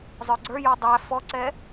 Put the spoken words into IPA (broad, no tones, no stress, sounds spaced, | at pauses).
zˤ ə˞ ɡ͡ǀ ə˞ j ɔ dˤ æ f ɔ ǀ ɛ